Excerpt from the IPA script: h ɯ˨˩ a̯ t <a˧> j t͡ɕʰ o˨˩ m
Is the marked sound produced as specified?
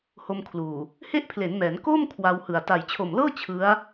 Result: no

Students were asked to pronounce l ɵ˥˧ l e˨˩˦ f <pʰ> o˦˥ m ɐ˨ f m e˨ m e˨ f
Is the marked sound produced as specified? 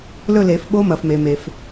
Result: no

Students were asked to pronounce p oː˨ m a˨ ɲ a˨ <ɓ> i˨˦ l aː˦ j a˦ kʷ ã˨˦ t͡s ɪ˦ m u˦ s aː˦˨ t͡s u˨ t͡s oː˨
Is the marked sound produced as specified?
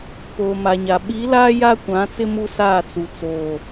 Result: yes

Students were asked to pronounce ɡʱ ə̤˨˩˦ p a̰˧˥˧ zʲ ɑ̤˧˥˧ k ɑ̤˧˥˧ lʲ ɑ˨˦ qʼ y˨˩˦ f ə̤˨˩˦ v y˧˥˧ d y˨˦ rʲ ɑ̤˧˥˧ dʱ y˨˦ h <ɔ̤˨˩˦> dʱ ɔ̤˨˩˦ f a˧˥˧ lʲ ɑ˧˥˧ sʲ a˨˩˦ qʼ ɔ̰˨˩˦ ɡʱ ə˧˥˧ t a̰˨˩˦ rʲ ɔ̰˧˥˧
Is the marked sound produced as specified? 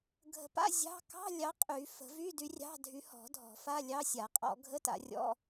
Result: yes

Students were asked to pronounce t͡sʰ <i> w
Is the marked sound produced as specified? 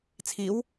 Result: yes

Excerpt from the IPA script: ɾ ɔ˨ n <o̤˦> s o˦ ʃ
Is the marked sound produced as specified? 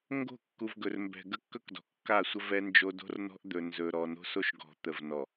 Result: yes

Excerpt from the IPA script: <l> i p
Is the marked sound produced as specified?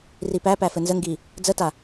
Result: no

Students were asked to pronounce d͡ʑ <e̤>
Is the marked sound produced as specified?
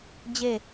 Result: no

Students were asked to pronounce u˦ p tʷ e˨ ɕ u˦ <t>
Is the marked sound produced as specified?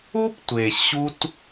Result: yes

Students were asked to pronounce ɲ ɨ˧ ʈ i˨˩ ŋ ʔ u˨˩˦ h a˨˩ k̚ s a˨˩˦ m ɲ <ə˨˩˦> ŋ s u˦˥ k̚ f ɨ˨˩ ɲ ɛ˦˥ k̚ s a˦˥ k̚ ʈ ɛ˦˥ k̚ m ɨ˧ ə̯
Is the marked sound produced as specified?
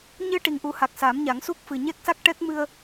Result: no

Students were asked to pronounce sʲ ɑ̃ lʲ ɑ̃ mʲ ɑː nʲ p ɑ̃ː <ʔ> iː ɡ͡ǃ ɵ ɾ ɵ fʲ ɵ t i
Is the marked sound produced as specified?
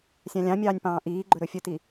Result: yes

